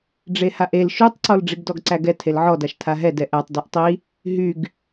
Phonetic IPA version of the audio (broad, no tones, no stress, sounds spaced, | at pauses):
ɖ͡ʐ e h a ʔ e l ʃ y tˤ ǀ ɔ l ɖ͡ʐ i ɡ d ɔ ɡ ǀ æ ɡ ɛ tʰ e l ʕ ɔ d a ʃ tʰ a ɦ ɛ d ɛ ʔ æ tˤ d y ʔ tˤ i | ɦ y ɡ